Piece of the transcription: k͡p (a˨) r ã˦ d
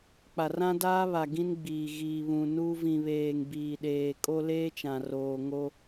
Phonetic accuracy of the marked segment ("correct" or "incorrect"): correct